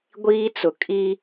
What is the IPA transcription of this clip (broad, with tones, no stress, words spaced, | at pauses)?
ɡʷiː˦t͡sʊ˨ kʼi˦